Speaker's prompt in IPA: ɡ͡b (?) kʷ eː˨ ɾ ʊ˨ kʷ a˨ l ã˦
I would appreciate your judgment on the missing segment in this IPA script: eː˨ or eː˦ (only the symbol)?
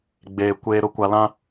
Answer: eː˨